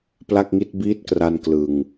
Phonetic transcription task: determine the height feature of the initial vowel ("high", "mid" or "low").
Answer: low